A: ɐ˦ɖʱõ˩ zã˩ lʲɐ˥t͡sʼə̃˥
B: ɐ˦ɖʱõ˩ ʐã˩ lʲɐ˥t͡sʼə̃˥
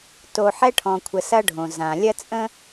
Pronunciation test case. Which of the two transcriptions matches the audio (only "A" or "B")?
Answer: A